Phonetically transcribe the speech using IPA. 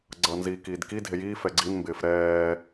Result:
ɡ͡ǀʌːnziːkiːdki dʱejiː fɛɡ͡ǀin mbɪːfɾɛː

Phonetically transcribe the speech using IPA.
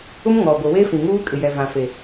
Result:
ʊ˦mŋɔ˨ɡʷɪ˨we˦ fĩ˨ŋuː˦kʼɪ˨jɛ˨ vã˨fe˨

